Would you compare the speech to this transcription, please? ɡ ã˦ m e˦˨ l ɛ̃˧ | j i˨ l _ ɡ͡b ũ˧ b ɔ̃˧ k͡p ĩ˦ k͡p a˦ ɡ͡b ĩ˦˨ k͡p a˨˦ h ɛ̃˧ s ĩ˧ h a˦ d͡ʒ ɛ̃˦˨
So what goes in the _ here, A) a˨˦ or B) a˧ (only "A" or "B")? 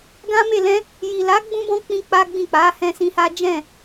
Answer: A